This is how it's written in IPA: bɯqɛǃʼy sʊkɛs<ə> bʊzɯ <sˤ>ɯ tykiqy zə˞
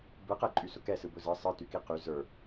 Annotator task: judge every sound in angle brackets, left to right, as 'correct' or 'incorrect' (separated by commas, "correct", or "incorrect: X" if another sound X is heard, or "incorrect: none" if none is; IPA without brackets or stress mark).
incorrect: ɯ, correct